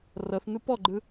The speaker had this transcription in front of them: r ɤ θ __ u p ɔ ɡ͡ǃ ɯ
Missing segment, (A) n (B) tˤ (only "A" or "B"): A